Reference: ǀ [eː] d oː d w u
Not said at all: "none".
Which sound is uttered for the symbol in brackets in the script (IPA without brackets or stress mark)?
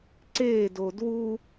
eː